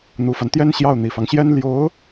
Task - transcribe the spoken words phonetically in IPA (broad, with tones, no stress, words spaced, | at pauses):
n̪u˨˩fa˦nt̪jɛ˥n ɕjɑ˥˩ʊ̯n̪i˨˩fɑ˦ŋɕjɛ˥n ljo˧˥ʊ̯